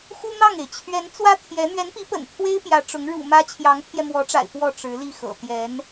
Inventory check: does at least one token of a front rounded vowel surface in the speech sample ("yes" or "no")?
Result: no